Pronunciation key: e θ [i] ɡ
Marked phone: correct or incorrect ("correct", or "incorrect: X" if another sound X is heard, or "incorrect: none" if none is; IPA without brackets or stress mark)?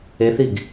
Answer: correct